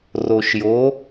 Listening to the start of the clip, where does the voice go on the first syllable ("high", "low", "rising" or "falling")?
low